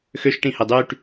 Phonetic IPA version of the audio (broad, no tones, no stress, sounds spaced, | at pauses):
x ø ʃ ʈ ĩ h e dˤ y ʈ